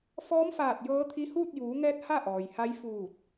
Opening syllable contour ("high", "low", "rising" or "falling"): rising